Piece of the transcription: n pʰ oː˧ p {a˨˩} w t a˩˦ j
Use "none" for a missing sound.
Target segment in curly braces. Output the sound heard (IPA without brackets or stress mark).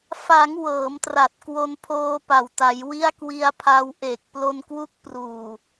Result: a˨˩